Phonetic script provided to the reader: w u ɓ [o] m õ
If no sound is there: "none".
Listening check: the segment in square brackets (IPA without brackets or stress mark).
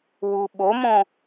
o